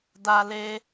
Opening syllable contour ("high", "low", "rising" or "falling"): high